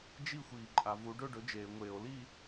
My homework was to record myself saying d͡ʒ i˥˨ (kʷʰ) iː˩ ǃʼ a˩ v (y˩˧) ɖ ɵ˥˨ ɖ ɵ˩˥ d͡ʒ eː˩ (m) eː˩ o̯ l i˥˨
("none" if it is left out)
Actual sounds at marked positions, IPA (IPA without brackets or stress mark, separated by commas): xʷ, u˩˧, ŋʷ